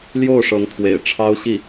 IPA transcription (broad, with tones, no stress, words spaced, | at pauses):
ljo˥˩ʊ̯ʂɤ˧˥ŋt̪ʰwḛ˨˩ɪ̯ ʈ͡ʂʰɑ˥ʊ̯ ɕi˥˩